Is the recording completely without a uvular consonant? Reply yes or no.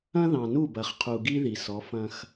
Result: no